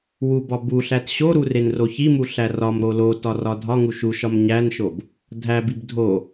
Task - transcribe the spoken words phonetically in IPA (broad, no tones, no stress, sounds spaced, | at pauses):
w u b ɒ b u ɬ æ t ɕ o ɾ u r e n r o ç i m u ɬ æ r ɒ m ɾ o l o t ɒ r ɒ dʱ ɒ ŋ u ʃ u ʃ ɒ m ɲ æ n ʃ o b | dʱ æ b i b dʱ o